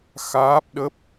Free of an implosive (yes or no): no